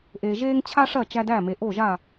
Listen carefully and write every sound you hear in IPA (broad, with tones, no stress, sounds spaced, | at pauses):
ʔ eː˩ ʒ eː˥ ŋ t͡ɕʰ a˥ ʂ ɐ˥˩ t͡ʃ æ˧ d æ˥˩ m e˩ ʔ o˥˩ ʒ a˥˩